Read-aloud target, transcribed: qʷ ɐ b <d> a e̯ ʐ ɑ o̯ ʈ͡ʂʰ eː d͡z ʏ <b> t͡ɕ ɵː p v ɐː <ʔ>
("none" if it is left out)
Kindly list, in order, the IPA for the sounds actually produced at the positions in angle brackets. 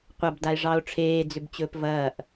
d, b, ʔ

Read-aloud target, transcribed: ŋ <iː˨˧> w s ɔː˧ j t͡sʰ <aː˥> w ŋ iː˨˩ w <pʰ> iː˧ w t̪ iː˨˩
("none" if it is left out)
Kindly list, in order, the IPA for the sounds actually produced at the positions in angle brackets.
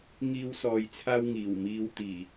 iː˥, aː˥, m

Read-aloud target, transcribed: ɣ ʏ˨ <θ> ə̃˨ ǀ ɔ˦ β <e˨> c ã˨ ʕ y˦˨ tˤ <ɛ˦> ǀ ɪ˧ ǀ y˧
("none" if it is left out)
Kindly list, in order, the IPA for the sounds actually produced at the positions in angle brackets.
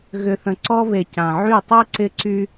θ, e˨, ɛ˦

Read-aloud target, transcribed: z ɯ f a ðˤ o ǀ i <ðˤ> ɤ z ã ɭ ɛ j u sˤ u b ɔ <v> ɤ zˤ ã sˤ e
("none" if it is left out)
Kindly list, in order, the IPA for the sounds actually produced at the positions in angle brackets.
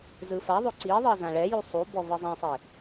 ðˤ, v

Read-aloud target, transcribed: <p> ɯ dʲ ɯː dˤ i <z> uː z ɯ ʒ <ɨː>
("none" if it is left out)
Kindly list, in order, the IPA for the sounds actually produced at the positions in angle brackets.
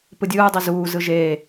p, z, eː

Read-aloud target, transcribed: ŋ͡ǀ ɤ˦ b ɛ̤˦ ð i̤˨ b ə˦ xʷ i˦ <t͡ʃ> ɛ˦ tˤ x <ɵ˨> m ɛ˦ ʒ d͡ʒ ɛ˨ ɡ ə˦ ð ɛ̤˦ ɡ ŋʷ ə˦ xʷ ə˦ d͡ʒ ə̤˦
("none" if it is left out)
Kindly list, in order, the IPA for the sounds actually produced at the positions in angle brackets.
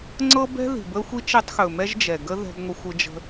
t͡ʃ, ɵ˨

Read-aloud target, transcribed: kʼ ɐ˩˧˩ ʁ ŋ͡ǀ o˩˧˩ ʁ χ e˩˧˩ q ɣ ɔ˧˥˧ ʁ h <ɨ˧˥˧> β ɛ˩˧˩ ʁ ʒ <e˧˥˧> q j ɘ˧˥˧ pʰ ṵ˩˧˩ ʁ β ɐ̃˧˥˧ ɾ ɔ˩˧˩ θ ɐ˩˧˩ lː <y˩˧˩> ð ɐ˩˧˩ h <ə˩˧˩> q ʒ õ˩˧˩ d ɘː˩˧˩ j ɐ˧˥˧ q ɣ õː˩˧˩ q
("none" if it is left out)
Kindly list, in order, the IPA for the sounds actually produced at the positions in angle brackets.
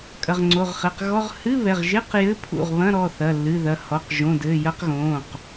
ɨ˧˥˧, e˧˥˧, ɨ˩˧˩, ɔ˩˧˩

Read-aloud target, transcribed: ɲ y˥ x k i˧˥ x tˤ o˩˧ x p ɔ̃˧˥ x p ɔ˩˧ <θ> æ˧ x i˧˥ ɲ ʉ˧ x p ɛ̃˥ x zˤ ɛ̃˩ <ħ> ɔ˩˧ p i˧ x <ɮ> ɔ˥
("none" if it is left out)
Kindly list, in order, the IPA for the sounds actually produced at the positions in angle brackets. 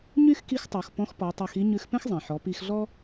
tˤ, ħ, ɮ

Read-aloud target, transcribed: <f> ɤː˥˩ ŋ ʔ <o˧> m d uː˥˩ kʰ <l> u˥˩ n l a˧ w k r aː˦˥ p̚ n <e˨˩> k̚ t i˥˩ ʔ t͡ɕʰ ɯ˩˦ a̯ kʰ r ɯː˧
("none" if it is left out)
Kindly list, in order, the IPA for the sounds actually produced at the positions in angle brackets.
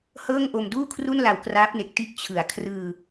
h, o˧, r, e˨˩

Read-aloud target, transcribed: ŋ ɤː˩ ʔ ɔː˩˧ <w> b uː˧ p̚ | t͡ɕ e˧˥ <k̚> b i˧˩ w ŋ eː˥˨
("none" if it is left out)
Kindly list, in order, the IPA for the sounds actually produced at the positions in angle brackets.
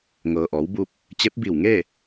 w, p̚

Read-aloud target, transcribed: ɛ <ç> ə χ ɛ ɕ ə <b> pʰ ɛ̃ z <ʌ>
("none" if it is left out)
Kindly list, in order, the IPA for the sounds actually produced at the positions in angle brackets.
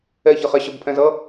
ç, b, ʌ

